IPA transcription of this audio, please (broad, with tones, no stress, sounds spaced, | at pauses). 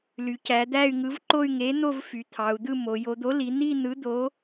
l y˩˧ c æ˩˧ d̪ æ˥˧ y̯ ŋ ɯ˨˥ v ǃ o˥˧ y̯ ŋ e˨˥ n̪ o˥˧ v f y˩˧ t̪ʰ ɑ˩˧ u̯ d̪ ɯ˥˧ m o˩˧ j o˩˧ d̪ o˨˥ l i˩˧ n̪ i˥˧ n̪ ɯ˨˥ d̪ o˨˥